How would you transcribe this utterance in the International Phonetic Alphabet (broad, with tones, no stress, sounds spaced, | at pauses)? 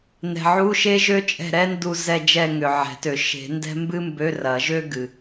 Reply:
n ɛ̤˨ ʕ u˧˥˧ ʃ e˥ ʒ ø˥ t͡ʃʼ ɛ̤˦˨ ɾ ɛ˥ n d u˦˨ z ɛ˦˨ d͡ʒ ɛ˦˨ ŋ ʏ˨ ʕ ɛ̤˨˩˦ t ø˨˩˦ ʃ e̤˨˩˦ n d ɛ̤˥ m b ɨ˥ m b ø˧˥˧ r ɐ˨˩˦ ʒ ø˥ ɡ ɨ˨